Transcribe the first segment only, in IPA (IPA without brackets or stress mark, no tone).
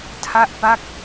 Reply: tʰ